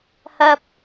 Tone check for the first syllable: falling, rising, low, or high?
low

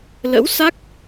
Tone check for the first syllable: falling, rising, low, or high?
rising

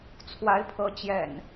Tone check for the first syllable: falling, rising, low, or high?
rising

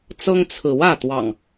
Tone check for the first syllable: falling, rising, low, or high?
high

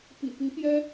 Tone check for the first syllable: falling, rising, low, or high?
low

